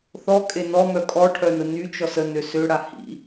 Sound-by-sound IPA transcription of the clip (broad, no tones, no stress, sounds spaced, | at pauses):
θ ɔ kʼ e n ɔ m œ kʼ ɔ ʈʰ œ n ə n y t͡ʃ ɔ s ə n ø s ø ɽ a h ḭ